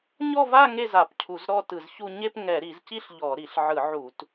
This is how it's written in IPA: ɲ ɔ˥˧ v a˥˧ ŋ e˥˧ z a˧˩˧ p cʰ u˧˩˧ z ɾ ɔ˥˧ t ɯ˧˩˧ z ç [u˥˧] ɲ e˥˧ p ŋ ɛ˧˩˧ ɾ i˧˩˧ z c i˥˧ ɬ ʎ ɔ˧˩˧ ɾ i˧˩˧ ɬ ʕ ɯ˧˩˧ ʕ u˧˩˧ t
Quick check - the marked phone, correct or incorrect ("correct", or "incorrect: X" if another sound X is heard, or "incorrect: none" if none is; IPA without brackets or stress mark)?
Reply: correct